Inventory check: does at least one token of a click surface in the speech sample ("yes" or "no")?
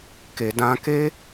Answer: no